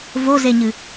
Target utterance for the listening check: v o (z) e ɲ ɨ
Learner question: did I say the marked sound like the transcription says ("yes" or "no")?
yes